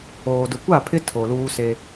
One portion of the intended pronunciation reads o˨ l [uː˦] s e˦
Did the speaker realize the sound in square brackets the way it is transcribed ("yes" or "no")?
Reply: yes